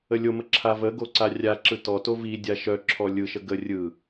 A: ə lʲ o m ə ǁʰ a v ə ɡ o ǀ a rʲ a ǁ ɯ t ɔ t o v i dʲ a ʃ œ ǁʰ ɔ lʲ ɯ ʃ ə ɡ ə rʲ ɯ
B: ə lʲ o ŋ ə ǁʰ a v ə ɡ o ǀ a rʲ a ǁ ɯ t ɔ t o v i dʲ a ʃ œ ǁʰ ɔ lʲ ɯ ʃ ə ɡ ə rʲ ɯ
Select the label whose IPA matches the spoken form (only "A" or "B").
A